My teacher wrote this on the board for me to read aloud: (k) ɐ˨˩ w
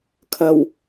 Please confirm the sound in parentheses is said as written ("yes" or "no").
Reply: no